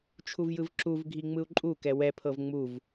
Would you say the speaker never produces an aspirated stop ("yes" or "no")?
no